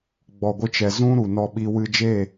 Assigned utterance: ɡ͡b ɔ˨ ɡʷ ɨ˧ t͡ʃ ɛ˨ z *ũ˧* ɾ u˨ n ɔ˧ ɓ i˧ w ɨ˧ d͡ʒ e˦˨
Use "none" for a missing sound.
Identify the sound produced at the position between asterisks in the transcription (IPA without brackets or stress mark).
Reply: ũ˦